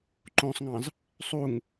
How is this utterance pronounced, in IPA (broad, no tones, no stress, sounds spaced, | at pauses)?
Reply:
ǃ õ sˤ ŋ ɑ̃ z | sˤ u ŋ